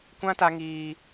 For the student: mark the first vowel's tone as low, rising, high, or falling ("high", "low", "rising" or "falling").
high